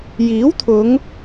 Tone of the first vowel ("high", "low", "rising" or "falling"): rising